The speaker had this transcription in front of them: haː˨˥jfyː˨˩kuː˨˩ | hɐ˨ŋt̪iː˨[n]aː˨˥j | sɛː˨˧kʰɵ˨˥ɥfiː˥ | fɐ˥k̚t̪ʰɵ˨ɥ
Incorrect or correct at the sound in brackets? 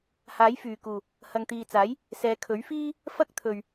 incorrect: t͡s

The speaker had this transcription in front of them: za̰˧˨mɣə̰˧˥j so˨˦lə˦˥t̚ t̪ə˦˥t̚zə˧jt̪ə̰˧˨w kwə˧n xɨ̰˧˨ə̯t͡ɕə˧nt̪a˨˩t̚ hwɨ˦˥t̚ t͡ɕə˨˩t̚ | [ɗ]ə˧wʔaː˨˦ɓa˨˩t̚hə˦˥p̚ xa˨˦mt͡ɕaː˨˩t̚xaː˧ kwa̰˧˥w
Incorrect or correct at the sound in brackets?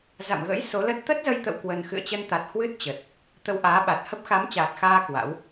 incorrect: t̪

